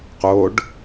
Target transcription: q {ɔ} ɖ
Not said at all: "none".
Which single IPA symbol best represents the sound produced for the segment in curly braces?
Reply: o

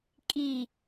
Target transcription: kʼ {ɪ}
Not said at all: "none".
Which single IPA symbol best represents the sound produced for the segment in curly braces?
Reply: i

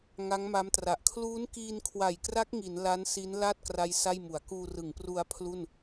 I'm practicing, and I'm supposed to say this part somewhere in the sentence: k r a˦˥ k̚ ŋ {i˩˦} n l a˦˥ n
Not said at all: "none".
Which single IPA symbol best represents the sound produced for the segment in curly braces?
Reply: i˩˦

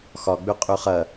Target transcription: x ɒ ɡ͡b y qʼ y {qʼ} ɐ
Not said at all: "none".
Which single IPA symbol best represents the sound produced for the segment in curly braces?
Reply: χ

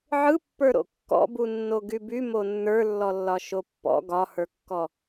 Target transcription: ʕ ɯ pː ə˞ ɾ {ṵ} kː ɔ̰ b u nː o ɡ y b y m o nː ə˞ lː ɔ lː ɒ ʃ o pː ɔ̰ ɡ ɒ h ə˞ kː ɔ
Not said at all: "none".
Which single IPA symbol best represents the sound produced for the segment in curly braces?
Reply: o̰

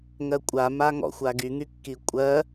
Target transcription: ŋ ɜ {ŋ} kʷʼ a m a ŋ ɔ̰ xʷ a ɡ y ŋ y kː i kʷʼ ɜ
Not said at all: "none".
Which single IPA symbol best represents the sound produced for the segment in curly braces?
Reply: none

